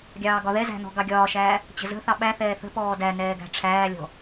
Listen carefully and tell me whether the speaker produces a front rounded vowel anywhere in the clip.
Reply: no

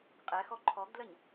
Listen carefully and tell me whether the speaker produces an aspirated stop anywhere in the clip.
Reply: yes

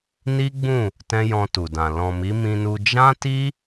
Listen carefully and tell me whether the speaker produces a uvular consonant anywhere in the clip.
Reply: no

